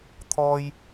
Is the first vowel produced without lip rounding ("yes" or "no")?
no